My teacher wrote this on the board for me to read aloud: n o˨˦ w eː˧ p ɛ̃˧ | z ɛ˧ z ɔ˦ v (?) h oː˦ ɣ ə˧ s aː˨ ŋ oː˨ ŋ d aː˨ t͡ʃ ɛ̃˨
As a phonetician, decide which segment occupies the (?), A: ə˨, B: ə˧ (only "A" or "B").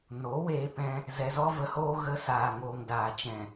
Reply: B